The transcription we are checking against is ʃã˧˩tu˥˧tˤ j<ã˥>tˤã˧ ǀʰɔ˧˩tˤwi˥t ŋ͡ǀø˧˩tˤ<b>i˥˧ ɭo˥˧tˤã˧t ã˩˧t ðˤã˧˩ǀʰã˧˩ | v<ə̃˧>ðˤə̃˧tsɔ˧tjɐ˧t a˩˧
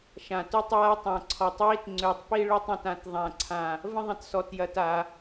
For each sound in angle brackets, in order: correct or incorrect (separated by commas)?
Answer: incorrect, incorrect, incorrect